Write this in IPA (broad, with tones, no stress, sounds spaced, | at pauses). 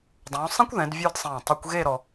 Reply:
dˤ ũː˩˧ sˤ ẽ˥ kʷ ð ɛ̃˩˧ d vʲ ə˞˥˧ d sˤ ẽː˧˩ tˤ i˧ kʷ ɣ e˥˧ ɾ ɔ˧